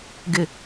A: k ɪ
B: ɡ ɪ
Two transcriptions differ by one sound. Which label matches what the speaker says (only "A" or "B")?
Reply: B